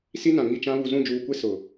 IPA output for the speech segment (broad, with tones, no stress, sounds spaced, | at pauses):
s i˦ n ã˨ ŋ i˦˨ t͡ʃ ã˦ β u˨ z ũ˦˨ d͡ʒ uː˨ kʷ e˦ s ʊ˨